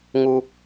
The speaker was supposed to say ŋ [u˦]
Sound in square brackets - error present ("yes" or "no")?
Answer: no